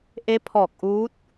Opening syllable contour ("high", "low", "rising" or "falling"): rising